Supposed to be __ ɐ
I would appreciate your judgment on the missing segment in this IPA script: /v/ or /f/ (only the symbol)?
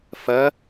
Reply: f